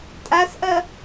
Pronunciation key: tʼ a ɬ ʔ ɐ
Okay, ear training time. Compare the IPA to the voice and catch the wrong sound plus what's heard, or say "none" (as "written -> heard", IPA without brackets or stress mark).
ɬ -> s